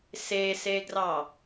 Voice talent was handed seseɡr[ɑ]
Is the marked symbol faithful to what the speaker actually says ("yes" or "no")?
yes